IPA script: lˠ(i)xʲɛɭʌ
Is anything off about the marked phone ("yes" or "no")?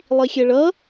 no